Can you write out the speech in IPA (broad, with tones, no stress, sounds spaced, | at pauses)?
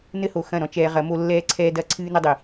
n ɘ˦ h o˨ x ɐ̃˦˨ ɾ ɔ̃˦ t͡ʃ ɛː˧ ʁ ɐ˨˦ m o˦ lː ɛː˦ ǀʰ ɛː˦ d ɐ˦ ǀʰ ɨː˦ n ɘ˦ dˤ i˨